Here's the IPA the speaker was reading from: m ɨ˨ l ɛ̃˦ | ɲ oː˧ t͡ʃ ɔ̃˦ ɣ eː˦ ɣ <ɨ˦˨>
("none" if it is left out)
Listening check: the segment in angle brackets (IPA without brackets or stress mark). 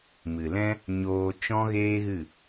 ɨ˦˨